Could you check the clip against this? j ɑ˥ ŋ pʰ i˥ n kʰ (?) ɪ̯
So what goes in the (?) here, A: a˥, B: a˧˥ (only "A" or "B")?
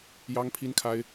A